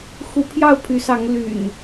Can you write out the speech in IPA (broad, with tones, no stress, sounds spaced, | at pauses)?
x u˨˦ pʰ j ɑ˥˨ ʊ̯ pʰ y˨˦ s ɑ˨˦ ŋ l y̰˨˩ n